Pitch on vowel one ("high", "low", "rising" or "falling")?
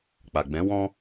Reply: low